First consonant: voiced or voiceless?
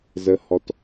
voiced